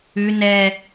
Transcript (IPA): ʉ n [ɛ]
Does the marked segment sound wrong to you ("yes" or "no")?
no